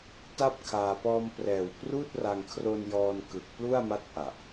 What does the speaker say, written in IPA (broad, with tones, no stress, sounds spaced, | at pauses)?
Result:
t a˥˩ p̚ kʰ aː˧ p ɔː˧ m p r ɛː˨˩ w p r uː˥˩ t̚ r a˧ ŋ kʰ r o˧ n j ɔː˧ n k ɯ˨˩ k̚ p l u˥˩ a̯ m a˦˥ t̚ ʔ a˨˩ ʔ